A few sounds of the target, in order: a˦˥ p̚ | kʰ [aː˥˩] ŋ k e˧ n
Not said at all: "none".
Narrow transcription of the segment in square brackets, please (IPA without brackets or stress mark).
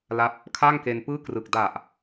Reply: aː˥˩